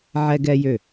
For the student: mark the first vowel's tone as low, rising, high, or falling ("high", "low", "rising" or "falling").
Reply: high